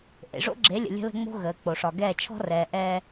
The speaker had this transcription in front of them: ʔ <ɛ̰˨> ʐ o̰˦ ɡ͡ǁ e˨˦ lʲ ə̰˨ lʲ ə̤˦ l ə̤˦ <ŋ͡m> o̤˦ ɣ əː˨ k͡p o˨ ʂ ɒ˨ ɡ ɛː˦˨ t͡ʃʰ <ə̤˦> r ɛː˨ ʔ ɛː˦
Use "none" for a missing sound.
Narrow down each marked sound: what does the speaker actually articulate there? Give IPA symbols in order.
ḛ˨, ŋ͡m, ɔ̤˦

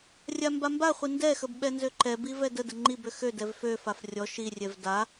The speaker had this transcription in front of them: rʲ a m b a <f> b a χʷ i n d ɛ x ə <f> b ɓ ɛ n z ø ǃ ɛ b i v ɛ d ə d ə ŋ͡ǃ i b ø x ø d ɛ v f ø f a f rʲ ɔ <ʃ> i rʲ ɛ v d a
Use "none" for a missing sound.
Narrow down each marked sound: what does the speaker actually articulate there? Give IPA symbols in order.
m, none, ʃ

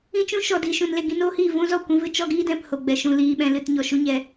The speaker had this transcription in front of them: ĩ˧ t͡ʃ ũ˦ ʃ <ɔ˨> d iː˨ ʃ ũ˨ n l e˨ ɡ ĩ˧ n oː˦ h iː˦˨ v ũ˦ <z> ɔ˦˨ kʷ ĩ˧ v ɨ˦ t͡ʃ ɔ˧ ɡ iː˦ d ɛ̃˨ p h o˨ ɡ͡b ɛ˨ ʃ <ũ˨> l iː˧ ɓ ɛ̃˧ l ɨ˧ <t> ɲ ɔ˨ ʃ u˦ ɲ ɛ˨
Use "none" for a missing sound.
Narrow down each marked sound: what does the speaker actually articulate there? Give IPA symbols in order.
ɔ˨, z, ũ˧, t

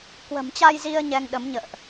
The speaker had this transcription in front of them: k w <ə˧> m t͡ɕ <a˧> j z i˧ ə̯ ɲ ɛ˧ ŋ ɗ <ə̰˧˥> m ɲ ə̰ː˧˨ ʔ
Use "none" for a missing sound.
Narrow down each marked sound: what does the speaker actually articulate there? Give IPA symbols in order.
ə̤˨˩, a˧, ə˨˦

